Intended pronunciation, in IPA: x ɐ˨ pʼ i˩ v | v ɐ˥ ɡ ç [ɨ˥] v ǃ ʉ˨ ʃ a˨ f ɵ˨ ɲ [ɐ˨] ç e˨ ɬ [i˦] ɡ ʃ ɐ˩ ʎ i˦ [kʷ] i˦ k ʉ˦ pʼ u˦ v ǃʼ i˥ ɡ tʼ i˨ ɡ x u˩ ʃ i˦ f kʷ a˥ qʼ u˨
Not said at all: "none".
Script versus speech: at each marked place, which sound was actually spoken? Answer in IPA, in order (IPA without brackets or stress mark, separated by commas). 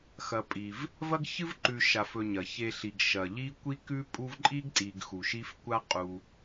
ɨ˥, ɐ˩, i˩, kʷ